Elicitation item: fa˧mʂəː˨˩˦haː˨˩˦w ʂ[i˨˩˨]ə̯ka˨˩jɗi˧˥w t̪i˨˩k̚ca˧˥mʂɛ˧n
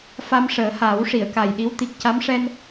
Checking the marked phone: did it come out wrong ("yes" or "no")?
no